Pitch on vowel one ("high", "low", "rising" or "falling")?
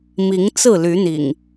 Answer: rising